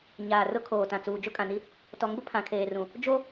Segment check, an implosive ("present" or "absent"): absent